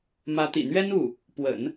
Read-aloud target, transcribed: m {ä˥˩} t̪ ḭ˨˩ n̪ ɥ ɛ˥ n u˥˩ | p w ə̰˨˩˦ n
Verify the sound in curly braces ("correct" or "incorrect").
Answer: incorrect